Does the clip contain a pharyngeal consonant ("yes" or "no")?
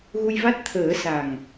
no